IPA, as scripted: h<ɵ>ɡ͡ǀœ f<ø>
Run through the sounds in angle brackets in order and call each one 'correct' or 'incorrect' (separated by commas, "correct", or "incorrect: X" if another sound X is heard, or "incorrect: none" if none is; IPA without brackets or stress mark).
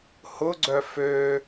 incorrect: ʊ, correct